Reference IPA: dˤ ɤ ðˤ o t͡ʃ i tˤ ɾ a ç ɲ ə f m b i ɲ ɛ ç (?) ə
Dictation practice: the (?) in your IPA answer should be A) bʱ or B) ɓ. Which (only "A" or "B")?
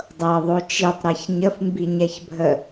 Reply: A